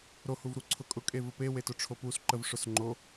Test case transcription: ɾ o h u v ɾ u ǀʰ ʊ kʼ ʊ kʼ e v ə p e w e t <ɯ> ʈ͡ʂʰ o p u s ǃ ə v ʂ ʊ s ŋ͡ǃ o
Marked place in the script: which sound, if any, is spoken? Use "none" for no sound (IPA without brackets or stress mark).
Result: ʊ